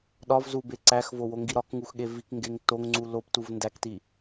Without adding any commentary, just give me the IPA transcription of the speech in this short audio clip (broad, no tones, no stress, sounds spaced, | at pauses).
ɗ ɒ v z u b e ǀ æ x v o w o ŋ ɡ i ɾ ɒ k ŋ u x ɠ e v i k ŋ ɡ e ŋ t o ŋ ŋ͡ǀ u l o p t u v n d æ k t i